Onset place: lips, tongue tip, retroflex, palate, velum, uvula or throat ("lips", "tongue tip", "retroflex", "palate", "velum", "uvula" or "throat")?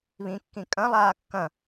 lips